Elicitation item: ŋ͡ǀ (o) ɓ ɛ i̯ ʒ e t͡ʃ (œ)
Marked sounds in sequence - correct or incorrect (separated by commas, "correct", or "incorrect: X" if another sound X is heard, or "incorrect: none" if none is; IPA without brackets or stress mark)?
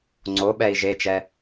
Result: correct, incorrect: ɛ